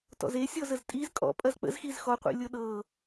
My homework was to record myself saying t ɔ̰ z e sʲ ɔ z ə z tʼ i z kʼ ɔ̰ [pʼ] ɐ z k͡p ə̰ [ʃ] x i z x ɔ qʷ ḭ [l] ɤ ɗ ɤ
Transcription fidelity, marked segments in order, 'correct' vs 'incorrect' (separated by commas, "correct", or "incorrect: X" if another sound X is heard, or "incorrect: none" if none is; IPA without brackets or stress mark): correct, incorrect: z, incorrect: lʲ